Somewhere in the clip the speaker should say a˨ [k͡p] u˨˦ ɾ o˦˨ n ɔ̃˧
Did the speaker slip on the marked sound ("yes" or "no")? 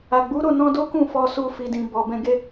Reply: yes